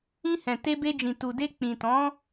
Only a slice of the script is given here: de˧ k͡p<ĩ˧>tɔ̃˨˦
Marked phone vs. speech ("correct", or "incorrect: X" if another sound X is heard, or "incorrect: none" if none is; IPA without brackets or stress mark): incorrect: ĩ˨